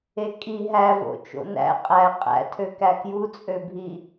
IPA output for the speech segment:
e kʼ i ɦ æ v o̰ t͡ʃ o̰ n æ̰ qʼ æ qʼ æ̰ tʰ ø k æ k j u t͡sʼ ø bʱ i

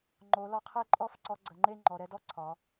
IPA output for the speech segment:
ŋ͡ǃ o˩˧ l ɒ˧ qʰ e˥˧ ǃʼ ɔ˥˧ f ǀ ɔ˧ ɡ͡ǀ ə˩˧ ŋ͡ǃ e˥˧ ŋ͡ǃ ɔ˩˧ ɾ ɛ˧ d ɔ˥ ǀʰ ɒ˩˧

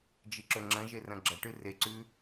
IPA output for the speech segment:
d͡ʒ i ǁ ɵ ŋ͡ǁ ɐ̃ ʒ e r ɐ̃ ɡ͡ǁ ɐ ʈ ɨ r e ǀ ʉ

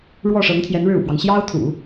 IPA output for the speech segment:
ɻ w ɔ˥˩ ʂ ɤ˧˥ ŋ t̪ʰ j ɛ˧˥ n ɻ ɻ̩˥˩ ṵ˨˩ p w ɑ˦ ŋ ɕ j ɑ˥ ʊ̯ t̪ʰ ṵ˨˩˦

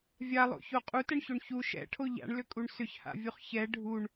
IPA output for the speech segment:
vʲ a lˠ o̰ ç o qʼ u t ɛ ɳ ç o ɳ ç u ʃ ɛ̰ ʈʰ o ʎ a̰ ɳ l ʏ kʼ u ɳ s ʏ ç h a̰ vʲ u χ ç ɛ ɖʱ u ɳ

